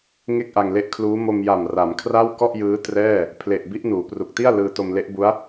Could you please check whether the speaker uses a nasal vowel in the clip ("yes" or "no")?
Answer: no